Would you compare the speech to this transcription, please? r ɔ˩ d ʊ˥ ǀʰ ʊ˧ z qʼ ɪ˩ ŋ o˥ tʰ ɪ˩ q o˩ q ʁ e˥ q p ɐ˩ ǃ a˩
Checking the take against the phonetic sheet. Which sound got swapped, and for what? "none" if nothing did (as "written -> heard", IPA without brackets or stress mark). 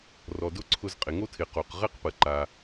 none